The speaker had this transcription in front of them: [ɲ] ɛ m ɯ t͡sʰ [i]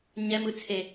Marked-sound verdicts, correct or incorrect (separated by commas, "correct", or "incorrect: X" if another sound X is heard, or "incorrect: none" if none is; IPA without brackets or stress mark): correct, incorrect: e